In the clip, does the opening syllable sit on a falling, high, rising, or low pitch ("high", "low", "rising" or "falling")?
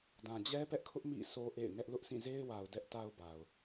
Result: low